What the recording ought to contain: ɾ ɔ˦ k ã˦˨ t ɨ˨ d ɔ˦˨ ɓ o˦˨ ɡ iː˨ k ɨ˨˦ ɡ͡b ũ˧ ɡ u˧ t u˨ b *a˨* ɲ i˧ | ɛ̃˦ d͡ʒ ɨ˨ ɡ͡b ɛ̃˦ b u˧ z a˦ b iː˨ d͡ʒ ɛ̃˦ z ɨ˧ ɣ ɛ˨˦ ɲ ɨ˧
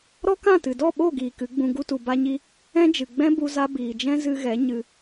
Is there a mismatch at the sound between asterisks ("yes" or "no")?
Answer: yes